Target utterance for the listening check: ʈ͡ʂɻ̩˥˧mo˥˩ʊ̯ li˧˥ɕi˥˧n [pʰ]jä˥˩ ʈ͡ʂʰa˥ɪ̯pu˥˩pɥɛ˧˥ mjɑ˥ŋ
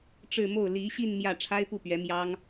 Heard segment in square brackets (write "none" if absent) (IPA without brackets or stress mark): m